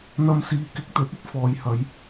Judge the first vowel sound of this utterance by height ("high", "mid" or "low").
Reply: low